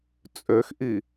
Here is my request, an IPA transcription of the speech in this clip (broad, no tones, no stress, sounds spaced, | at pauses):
t͡sʼ ø x ʔ i